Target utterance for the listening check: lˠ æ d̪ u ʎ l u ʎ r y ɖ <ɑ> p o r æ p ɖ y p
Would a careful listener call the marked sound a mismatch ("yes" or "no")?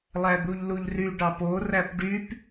no